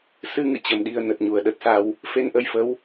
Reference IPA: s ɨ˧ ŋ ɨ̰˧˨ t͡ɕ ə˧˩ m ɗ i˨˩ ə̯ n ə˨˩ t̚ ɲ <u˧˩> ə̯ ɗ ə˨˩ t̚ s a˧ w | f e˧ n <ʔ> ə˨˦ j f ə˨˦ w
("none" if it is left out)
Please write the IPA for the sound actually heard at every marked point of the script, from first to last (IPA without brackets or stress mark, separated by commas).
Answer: u˧˩, ʔ